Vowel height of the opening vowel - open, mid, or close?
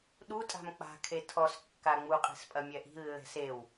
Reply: close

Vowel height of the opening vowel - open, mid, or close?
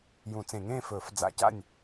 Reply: close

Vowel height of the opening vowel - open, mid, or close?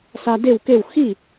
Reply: open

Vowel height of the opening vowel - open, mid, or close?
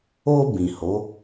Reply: mid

